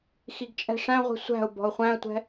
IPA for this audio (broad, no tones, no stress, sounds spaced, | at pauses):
x i ɡ t͡ʃʼ ɛ̤ ʂ æ̃ ʁʷ i̤ sʷ æ̤ ʊ̯ b ɔ̤ ʊ̯ χʷ æ̃ ə̯ tʷ ɛ̤